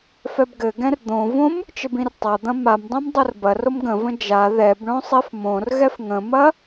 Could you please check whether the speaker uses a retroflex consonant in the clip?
yes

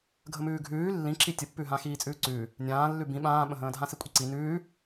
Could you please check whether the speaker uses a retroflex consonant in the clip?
no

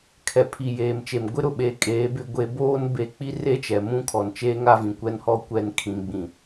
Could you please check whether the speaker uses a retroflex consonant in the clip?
no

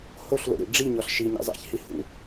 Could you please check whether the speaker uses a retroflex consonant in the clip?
yes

